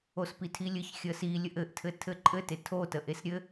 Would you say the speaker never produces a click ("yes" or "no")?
no